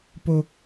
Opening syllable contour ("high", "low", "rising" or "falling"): high